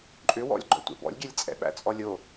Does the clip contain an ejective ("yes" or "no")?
yes